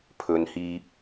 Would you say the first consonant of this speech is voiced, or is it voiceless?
voiceless